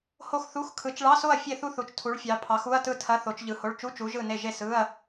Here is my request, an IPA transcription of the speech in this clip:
h o˥˨ x θ u˧˥˧ x kʰ ɯ˨˦ t͡ʃ ɭ ɑ˧˥˧ s o˥˨ ɐ̯ fʲ e˥˨ θ u˥˨ θ u˨˦ t͡ʃ tʰ u˨˦ ɭ fʲ ɑ˨˦ pʰ ɑ˨˦ x u˧˥˧ ɐ̯ t ɯ˥˨ tʰ ɐ˧˥˧ θ o˨˦ t͡ʃ ʎ ɯ˨˦ h o˧˥˧ ɭ t͡ʃ u˧˥˧ t͡ʃ u˨˦ ʒ ɯ˥˨ n e˥˨ ʒ e˥˨ s ɯ˧˥˧ ɐ̯

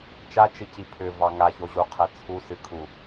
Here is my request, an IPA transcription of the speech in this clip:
t͡ʃ a t͡ʃ ɨ c i pʰ ʏ v ɑ ŋ a ç o ʑ u qʰ ɛ t͡sʰ u s ɨ kʰ u

